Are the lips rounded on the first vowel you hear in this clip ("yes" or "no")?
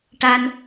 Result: no